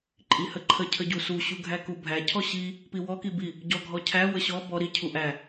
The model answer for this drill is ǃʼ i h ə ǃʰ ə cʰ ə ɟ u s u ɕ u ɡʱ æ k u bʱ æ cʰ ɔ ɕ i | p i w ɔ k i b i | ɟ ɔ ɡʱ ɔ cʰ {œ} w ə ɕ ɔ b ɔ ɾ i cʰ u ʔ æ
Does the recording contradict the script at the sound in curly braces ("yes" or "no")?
yes